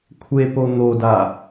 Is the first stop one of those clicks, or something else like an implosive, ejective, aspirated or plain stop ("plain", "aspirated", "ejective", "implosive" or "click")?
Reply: aspirated